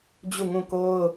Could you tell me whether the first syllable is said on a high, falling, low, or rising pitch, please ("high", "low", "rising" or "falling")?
falling